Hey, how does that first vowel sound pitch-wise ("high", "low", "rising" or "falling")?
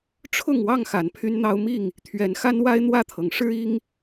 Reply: falling